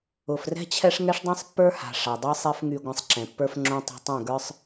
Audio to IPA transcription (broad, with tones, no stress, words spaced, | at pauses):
ʊ˨frɛ̤˦t͡ɕʰɛ˦ʂ ŋɛ˦ʂdˤɛ̃˦sˤpːə˞˦ ha̤˨ ʂa˨dˤɛ˦ sˤɛ˦fŋy˧ ɡʷã˧sˤǁɛ̃˨pːə˞˦fŋ͡ǁõ˦ tˤo̤˧tˤɛ̃˦˨ ɡə˞˦sˤ